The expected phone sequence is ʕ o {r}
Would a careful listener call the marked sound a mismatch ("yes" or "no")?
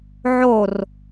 no